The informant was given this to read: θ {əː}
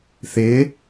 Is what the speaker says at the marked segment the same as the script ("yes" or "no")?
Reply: no